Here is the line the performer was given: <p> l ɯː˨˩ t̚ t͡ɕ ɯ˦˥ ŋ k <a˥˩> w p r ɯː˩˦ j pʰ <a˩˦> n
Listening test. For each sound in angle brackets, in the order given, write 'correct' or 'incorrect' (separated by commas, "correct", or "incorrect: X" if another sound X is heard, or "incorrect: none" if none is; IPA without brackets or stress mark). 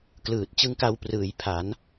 incorrect: k, incorrect: a˧, correct